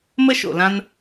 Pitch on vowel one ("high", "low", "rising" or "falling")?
high